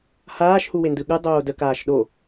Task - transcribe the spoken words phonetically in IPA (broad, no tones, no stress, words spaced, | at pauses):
haːʃhuwendɯ ɠɯ dˤoːdə kaːʃɗo